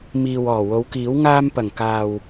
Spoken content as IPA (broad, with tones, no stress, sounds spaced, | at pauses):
m iː˨ w ɔː˨˩ w o˨˧ w k iː˨˥ w ŋ aː˧ m p ɐ˨˩ ŋ k aː˨ w